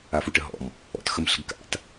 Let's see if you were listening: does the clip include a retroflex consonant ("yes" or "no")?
yes